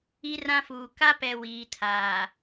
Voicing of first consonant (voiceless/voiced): voiced